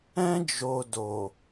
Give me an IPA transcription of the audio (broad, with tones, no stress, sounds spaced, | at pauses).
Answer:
ɛ̃˧ d͡ʒ o˨ d o˨